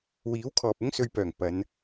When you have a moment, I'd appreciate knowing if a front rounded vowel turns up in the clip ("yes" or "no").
yes